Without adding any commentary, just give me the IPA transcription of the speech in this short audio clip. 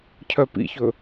cʰ œ p ḭ ç ɵ

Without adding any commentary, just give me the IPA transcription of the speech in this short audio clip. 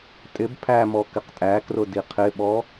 tʼ ɪ b pʰ æ m ɔ k ɪ q tʼ æ k r ʊ d i qʰ ɪ ɓ ɔ

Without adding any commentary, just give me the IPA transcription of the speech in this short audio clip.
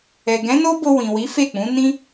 ɛ˨ ɡ ɛ̃˨˦ n o˦ b o˧ w ĩ˨ w i˨˦ f e˦˨ k͡p ũ˨˦ n ĩ˦

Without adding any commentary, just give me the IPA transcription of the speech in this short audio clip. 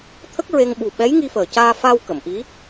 t̪ʰ ə˦˥ k̚ ɹ e˧ ŋ ɓ u˨˩ ɓ ɛ˧˥ j ŋ i˧ f əː˨˩ c aː˧ f a˧ w k ə˨˩˨ m ʔ i˧˥

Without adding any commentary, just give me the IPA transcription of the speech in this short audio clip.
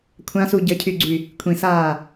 kʷʰ ã s u ɟ ə cʰ y ɡ͡ǀ y | kʷʰ ĩ s aː

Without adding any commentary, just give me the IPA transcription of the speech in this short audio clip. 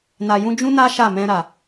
n a˨ j ũ˧ d͡ʒ ũ˦ n a˦ ʃ a˦˨ m ɛ̃˧ ɾ a˨

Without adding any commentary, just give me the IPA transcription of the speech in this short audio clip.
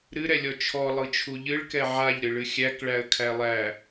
ɾ ɨ ɾ ɛ lʲ ɔ t͡ʃʰ ɔ lˠ ɯ t͡ʃʰ u ʎ ɨ ɭ k ɛ ʕ a ʎ ɾ ɨ ɭ ɨ xʲ æ k ɭ æ ə̯ kʰ æ lˠ æ

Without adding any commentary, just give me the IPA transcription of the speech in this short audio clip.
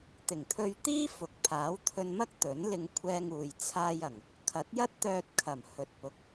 t̪ ɪ˨˩ ŋ t̪ʰ ɵ˧ ɥ t̪ iː˥ f ʊ˨ k̚ pʰ aː˨˥ w t̪ʰ ɵ˧ n m ɐ˥ k̚ t̪ ɵ˨˥ n l ɪ˧ ŋ kʷʰ ɛː˧ ŋ uː˨ j t͡sʰ aː˧ j ɐ˨˩ ŋ | kʰ ɐ˨˥ t̚ j ɐ˥ t̚ t̪ œː˧ t̚ kʰ ɐ˨˩ m h ɵ˨˥ t̚ p ʊ˨ k̚

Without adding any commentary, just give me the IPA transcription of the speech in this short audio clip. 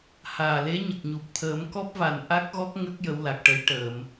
h aː˨˩ l e˧˥ ɲ ə˨˩ k̚ ɲ u˨˩ p̚ t̪ʰ əː˨˩˦ m k ɔ˦˥ p̚ v a˨˩ n ʔ a˦˥ k̚ ɣ ɔ˦˥ k̚ ŋ ə˦˥ k̚ j ə˧˥ w l a˨˩ k̚ ʈ ə˧˥ j ʈ əː˨˩˨ m

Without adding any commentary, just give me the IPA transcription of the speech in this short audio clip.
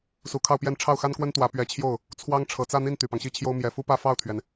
s u˧˥ kʰ ɑ˥˧ ʊ̯ p j ɛ˥˧ n ʈ͡ʂʰ ɑ˥˩ ʊ̯ x a˥ n k w ə˥ n t̪ w ä˧˥ p ɥ ɛ˧˥ t͡ɕʰ j o˥˩ ʊ̯ | t͡sʰ w ɑ˥ ŋ ʈ͡ʂʰ ɤ˨˩ t͡s ä˥˧ n̪ i˥˩ n t̪ y˨˩ p ɑ˦ ŋ ɕ i˥˩ t͡ɕʰ j o˥ ʊ̯ m j ɛ˨˩ f u˥ p ä˥˧ f ɑ˥˩ ʊ̯ t̪ʰ ɥ ɛ˩ n

